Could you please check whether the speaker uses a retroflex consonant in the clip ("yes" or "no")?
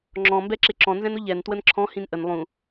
no